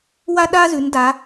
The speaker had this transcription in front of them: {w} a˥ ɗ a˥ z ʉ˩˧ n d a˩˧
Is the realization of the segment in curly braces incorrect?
no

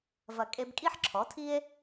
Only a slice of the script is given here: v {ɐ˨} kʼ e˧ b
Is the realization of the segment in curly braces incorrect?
no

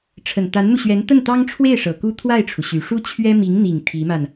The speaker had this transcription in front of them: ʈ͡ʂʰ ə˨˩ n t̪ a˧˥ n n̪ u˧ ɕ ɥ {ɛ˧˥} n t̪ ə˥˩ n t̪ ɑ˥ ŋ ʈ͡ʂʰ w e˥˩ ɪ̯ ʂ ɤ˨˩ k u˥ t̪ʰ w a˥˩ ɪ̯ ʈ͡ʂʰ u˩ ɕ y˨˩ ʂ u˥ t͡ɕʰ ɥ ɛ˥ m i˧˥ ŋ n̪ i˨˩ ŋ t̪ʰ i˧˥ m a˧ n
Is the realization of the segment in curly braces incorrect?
no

